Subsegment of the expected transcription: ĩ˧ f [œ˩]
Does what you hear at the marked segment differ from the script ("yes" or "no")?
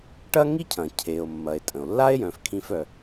no